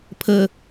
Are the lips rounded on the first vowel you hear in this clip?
no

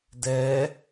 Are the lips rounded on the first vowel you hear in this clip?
no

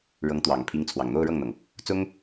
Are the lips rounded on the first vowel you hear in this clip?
no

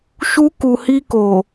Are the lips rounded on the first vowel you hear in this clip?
yes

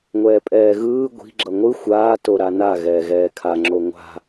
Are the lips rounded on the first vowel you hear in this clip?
no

